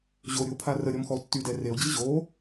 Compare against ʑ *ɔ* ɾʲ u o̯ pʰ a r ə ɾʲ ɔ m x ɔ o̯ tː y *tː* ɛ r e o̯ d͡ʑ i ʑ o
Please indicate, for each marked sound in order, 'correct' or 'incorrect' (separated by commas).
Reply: incorrect, incorrect